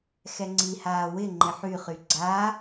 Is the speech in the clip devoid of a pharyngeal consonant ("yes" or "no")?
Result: no